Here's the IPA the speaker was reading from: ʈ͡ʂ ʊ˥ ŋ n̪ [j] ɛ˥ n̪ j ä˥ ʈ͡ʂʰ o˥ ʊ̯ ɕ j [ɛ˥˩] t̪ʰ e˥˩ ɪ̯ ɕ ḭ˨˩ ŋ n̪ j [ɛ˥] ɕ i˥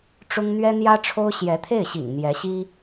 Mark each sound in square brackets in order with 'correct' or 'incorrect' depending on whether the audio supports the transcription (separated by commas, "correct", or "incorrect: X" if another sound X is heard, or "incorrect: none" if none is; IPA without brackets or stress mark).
incorrect: ɥ, incorrect: ɛ˧˥, incorrect: ɛ˧˥